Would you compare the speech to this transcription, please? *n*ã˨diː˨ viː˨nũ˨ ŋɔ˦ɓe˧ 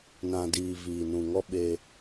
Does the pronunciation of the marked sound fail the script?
no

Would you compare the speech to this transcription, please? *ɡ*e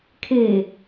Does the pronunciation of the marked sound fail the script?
yes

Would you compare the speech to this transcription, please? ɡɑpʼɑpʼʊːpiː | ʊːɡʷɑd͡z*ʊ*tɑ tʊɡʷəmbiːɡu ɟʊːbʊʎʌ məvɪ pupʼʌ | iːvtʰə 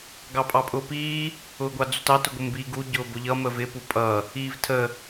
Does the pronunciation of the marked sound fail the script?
yes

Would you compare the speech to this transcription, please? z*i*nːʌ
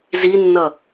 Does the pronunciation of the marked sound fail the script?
no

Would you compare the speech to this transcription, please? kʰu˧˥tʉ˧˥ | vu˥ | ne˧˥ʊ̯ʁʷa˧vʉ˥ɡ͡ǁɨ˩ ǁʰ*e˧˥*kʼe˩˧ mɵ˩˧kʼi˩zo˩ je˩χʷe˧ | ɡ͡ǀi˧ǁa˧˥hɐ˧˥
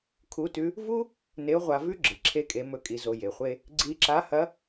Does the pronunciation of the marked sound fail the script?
yes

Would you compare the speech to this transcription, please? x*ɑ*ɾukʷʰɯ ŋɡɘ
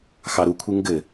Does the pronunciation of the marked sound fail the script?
no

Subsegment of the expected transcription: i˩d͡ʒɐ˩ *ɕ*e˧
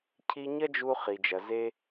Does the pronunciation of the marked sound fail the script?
yes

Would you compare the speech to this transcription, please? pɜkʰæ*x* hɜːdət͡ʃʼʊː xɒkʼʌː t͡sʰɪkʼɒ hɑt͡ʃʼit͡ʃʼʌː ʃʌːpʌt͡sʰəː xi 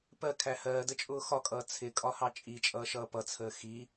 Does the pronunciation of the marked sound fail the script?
yes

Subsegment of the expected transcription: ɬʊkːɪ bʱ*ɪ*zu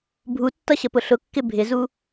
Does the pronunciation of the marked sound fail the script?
no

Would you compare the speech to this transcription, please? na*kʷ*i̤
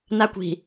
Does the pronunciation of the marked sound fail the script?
no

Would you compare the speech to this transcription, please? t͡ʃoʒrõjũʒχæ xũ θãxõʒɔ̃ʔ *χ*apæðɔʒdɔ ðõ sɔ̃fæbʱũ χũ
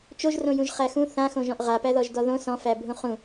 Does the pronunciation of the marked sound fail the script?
yes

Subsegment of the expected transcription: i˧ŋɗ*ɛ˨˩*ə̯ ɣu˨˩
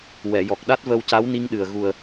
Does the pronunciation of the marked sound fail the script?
yes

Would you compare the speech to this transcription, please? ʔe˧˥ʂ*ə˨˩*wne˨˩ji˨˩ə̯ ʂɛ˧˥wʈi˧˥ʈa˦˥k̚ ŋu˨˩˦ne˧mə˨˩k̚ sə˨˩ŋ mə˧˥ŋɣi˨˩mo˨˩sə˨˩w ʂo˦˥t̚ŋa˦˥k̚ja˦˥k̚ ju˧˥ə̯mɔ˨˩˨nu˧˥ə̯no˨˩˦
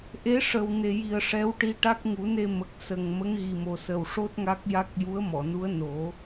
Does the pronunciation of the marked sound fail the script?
no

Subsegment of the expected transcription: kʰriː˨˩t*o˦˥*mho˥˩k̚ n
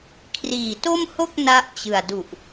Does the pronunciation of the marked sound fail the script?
yes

